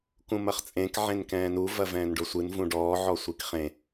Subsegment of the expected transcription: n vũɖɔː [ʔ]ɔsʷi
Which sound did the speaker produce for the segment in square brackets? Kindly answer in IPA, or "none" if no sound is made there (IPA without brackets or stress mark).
ʕ